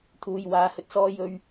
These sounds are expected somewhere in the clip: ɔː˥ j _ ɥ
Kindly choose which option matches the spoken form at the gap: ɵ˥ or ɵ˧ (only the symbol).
ɵ˧